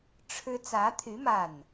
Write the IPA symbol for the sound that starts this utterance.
ʈ͡ʂʰ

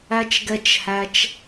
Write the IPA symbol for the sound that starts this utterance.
æ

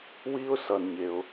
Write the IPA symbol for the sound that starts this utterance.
w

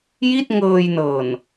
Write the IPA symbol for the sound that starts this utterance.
j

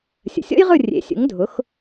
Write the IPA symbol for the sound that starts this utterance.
sʲ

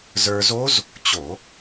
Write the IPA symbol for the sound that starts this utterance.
z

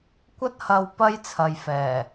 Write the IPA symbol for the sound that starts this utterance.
kʷ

